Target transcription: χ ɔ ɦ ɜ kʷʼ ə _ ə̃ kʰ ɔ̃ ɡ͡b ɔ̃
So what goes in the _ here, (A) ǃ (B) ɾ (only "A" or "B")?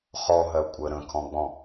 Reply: B